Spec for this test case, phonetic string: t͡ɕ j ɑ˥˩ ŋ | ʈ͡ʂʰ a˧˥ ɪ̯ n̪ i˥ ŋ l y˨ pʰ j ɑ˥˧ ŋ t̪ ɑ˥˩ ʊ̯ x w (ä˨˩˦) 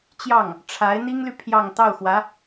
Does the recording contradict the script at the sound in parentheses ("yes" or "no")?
yes